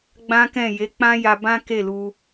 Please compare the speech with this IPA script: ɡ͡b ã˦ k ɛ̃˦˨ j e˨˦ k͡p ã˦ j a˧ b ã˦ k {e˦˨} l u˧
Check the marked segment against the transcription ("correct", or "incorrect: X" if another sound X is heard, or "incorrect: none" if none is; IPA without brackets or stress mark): correct